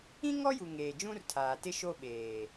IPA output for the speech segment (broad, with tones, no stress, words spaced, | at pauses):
ĩ˦ŋɔ˦ju˨ ŋeː˨d͡ʒũ˦rtʰaː˨tɪ˦ ʃo˦ɓeː˨